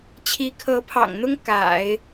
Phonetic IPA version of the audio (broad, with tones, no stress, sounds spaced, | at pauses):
t͡ɕʰ i˧˥ kʰ ɤ˧˥ pʰ ɑ̰˨˩ ŋ n̪ ʊ˥ ŋ k a̰˨˩˦ ɪ̯